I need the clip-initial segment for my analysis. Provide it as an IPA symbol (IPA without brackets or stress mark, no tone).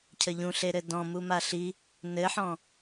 cʰ